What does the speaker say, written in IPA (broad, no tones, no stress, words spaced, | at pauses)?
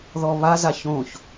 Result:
ðɔβazaç õç